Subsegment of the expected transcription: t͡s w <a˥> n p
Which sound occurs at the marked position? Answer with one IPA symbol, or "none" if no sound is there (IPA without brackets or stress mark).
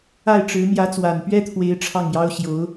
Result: a˨˩